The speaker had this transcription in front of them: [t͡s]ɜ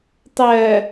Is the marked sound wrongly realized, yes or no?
yes